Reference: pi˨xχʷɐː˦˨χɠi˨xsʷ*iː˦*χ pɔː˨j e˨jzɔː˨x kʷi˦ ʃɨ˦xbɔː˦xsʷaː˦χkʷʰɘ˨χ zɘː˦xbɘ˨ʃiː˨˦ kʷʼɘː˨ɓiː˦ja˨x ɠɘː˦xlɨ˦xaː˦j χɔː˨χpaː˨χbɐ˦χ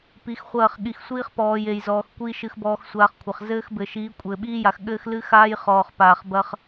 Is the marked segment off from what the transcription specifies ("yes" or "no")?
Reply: no